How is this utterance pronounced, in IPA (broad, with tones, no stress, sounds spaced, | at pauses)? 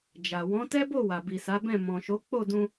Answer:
d͡ʒ a˨ w ɔ̃˨˦ t ɛ˦ b o˦˨ w a˨ b i˨ s a˨˦ b ɛ̃˦˨ m ɔ̃˨ ʃ o˨˦ k͡p o˦˨ d ũ˧